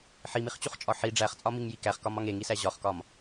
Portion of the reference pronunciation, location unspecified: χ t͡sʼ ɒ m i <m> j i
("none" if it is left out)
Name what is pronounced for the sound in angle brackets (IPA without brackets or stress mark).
ŋ